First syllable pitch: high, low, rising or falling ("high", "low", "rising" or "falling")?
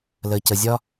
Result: low